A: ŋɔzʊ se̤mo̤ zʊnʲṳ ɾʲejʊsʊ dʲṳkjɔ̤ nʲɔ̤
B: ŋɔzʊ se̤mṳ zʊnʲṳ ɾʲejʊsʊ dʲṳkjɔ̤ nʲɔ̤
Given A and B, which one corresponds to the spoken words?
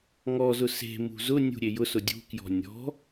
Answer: B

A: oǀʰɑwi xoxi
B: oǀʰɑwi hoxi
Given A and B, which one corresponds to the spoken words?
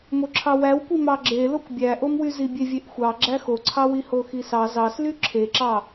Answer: B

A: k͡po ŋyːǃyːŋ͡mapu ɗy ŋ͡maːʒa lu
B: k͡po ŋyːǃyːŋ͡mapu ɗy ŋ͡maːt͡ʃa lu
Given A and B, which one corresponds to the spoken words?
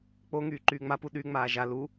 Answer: A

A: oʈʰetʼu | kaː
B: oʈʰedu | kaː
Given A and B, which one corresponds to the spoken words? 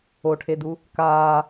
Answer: B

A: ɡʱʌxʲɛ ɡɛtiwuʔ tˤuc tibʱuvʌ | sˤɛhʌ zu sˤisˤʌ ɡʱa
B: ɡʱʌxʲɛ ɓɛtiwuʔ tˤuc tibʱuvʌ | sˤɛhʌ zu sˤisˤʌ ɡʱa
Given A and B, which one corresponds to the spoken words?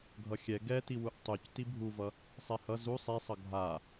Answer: A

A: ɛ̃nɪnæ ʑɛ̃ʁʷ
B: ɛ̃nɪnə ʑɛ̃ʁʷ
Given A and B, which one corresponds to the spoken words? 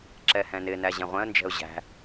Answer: A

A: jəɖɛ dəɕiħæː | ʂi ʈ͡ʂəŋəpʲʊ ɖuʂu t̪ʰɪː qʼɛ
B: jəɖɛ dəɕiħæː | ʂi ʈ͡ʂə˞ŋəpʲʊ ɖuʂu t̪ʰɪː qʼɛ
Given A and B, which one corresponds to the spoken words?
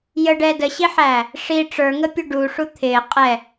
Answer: B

